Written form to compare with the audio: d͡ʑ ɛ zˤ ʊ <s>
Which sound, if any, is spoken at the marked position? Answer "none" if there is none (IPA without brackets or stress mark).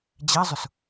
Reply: s